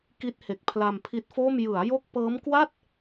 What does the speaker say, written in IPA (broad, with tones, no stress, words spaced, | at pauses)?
ki˦˥t̚he˨˩k̚ pʰla˧mpʰi˦˥t̚foː˥˩m jɯ˩˦a̯jo˦˥k̚ pɤː˦˥mkwa˥˩t̚